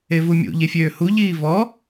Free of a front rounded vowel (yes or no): no